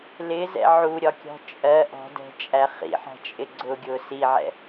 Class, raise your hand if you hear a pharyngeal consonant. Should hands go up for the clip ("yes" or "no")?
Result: yes